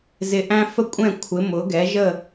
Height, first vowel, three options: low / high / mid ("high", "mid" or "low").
high